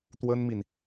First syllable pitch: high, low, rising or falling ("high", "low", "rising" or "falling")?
high